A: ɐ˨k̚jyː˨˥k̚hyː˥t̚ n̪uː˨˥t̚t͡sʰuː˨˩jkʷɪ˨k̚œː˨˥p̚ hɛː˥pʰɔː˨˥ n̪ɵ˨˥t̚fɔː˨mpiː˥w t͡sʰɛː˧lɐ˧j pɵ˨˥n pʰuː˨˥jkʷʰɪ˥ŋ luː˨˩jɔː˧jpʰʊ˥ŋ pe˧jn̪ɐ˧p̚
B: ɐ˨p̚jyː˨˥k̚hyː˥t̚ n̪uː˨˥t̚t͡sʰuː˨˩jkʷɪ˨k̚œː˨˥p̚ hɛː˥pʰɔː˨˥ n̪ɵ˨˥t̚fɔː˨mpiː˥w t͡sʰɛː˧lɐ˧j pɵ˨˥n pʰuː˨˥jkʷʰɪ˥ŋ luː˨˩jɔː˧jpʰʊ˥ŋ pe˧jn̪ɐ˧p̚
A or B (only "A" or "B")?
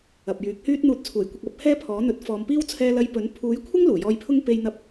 B